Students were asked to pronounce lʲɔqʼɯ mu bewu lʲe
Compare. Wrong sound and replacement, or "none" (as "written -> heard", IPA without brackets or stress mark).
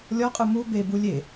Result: w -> b